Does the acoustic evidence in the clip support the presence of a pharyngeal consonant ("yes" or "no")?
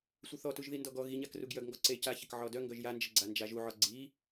yes